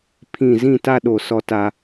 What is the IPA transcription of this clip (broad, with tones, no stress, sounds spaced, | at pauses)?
pʰ ĩ˦˨ z ĩ˦˨ t a˦ ɗ o˨ s ɔ˦ t a˦